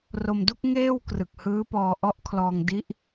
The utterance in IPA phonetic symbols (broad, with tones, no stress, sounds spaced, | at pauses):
r o˧ m d u˥˩ k̚ ŋ eː˥˩ w k r ɯ˨˩ k̚ h ɯː˦˥ p ɔː˧ ʔ ɔ˦˥ ʔ kʰ l ɔː˧ ŋ d i˦˥ ʔ